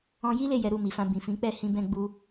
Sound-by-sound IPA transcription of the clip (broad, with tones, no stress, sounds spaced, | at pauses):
ɔ̃˧ j i˦ l e˦˨ j ɛ˨˦ ɾ u˦˨ m i˨ f ã˧ b ĩ˨ f ĩ˨˦ k͡p ɛ˦˨ h ĩ˧ b ɛ̃˦ ɡ͡b u˦